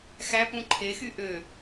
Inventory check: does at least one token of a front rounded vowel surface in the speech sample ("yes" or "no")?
yes